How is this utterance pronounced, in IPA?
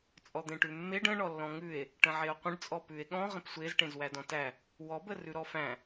t͡sʼ ɔ d̪ ẽ ʈ ʉ mː e ɖ ə̃ ɳ ɔ lː ɔ̃ ŋ ʉ e̯ | ʈ ə̃ ʕ e o̯ qʷ ə̃ ɖ t͡sʼ ɔ p ʉ e̯ ɠ ɔ̃ ʁ ə̃ p sʷ e z ʈ ẽ z w æ d ɔ̃ t æ | w ɔ b ə r ʉ ɾ ɔ f æ̃

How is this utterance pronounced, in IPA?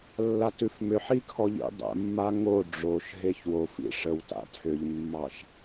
lː a t ʉ f m ʏ ħ i kʰ ɔ ʎ ḭ dˤ ə̰ mː a ŋ o ɖ͡ʐ o ʃ ɦ e ç w o f ḭ ʂ ə w t a̰ tʰ ʏ ʎ mː ɑ ʃ

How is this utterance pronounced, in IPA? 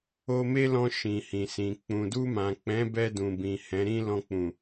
o˧ m e˦ l ɔ̃˧ ʃ ĩ˨ h ĩ˨ s ĩ˨ k͡p ũ˨ d u˧ m ã˨ k͡p ɛ̃˨˦ b ɛ˧ d ũ˨ b ĩ˨ h ɛ̃˨˦ ɾ ĩ˦ l ɔ̃˧ k͡p ũ˨

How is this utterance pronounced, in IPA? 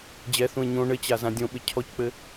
d͡ʑ ɛ θ ũ ɪ̯ ɲ õ ɳ ɘ t͡ɕ a z ã dʲ õ ɓ ɘ cʰ ɔ c k͡p ɘ

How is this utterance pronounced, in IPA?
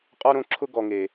qʼ ɔ˧ ɾ õ˧ ǁʰ ʊ˧ ɡ ɔ˨ ŋ e˨

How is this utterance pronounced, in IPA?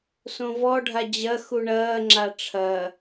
s õ v ɔ ɖʱ a d͡ʑ ɐ x u ɳ ɐː ŋ͡ǁ a ʈ͡ʂʰ ɐ

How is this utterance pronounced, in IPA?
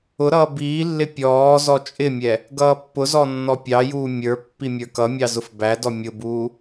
ʊ ɾ ʌː b iː lː ɪ pʲ ɔː z ɔ t͡ʃʼ ɪ mʲ ɛ | ɡ ʌː pː ʊ z ɔ nː ɔ pʲ ɑ j uː mʲ ə˞ pː i mʲ ə˞ k ʌ mʲ ɑ z ʊ f b æ d ɔ mʲ ʊ b uː

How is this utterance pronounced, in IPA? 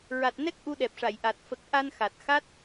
ɹ a˨˩ t̚ n ɛ˦˥ k̚ ʔ u˧ ɗ ɛ˨˩ p̚ ʂ a˨˩˨ j ʔ a˨˩ t̚ f ə˨˩ k̚ ʔ a˧ n x a˨˩ t̚ x a˦˥ t̚

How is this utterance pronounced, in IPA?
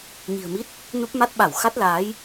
ɲ i̤˨˩ ə̯ m i˦˥ t̚ | n u˦˥ p̚ m a˦˥ t̚ ɓ a˧˩ w x a˦˥ t̚ l aː˨˦ j

